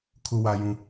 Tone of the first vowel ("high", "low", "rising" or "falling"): low